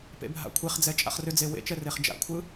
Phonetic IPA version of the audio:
p ḛ bʱ a̰ kʷʰ e χ d͡z ɛ t͡ʃʼ a̰ χ r ʏ d͡z e w ḛ t͡ʃ ɛ r e χ d͡ʒ a̰ kʷʰ ɯ

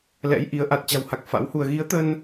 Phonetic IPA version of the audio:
l ɛ̰˧˥ j ʔ i˨˦ ə̯ ʔ a˨˩ t̚ t͡ɕ a̤˨˩ w h a˨˩ k̚ f a̰˧˥ w h u˧ ə̯ ɣ i˨˦ ə̯ t̪ ə˧ n

